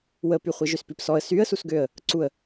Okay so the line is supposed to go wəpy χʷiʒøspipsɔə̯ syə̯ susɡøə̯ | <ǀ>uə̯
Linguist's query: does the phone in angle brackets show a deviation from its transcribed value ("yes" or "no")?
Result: no